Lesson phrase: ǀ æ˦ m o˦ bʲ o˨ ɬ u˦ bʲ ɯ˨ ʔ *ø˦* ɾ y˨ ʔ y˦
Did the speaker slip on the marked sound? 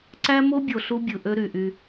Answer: no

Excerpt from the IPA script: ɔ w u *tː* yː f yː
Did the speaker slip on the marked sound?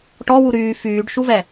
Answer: yes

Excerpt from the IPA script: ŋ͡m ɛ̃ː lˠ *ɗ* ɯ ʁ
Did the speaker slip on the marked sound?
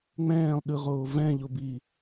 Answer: no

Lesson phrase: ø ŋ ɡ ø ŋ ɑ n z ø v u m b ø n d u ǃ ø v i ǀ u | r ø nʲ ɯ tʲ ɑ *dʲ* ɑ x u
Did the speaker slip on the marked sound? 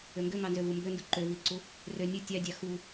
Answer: no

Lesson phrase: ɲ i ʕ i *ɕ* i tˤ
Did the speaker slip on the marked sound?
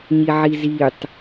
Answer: yes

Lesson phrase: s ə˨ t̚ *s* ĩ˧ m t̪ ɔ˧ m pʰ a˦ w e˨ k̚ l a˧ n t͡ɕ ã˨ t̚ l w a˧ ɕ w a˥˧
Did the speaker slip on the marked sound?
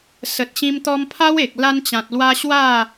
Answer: yes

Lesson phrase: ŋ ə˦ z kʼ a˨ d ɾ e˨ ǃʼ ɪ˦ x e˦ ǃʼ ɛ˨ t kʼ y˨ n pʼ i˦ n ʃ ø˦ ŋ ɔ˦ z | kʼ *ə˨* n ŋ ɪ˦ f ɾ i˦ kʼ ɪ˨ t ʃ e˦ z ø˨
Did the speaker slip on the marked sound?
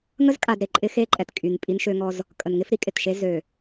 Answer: no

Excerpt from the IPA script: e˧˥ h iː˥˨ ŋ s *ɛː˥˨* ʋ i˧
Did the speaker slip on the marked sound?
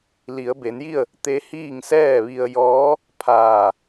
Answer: no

